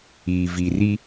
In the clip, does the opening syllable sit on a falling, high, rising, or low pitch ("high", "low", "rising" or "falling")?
low